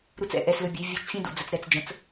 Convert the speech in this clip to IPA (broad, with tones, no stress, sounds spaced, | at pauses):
ɾ u˦ t͡s ɛ̰˦ ʔ ɛ˧ s l ɵ˧ bʲ ɵ˨˦ vʲ u˧ t͡ʃ fʲ ɛ̃˦ d ṵ˨ d͡z ə˧ t͡s ɾ ɛ˧ t͡s d͡ʒ ə̃˨˦ t͡s